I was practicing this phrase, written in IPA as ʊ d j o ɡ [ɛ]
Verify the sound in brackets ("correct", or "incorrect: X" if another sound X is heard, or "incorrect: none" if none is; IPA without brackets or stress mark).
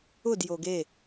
incorrect: e